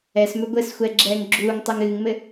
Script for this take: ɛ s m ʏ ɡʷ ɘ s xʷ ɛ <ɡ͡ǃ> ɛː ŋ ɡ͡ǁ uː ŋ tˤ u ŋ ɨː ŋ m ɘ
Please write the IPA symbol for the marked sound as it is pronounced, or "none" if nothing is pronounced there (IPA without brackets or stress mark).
ɡ͡ǁ